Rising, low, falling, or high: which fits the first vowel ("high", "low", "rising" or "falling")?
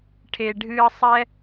low